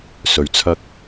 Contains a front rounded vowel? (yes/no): no